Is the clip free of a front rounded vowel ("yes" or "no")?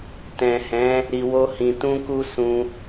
yes